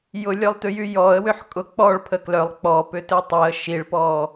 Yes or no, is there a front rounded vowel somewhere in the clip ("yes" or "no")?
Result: yes